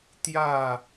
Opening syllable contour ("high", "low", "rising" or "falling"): falling